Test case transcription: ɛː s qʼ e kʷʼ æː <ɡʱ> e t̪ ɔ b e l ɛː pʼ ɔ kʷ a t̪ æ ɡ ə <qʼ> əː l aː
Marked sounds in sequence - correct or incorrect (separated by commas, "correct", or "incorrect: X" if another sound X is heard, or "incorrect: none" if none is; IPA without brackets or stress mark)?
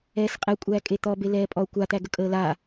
incorrect: kʼ, incorrect: kʼ